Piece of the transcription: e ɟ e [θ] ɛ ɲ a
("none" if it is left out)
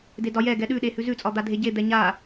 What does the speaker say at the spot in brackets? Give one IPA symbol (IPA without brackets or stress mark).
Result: d̪